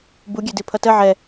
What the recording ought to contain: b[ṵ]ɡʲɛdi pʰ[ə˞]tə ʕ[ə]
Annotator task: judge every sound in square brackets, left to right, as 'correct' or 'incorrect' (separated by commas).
incorrect, incorrect, incorrect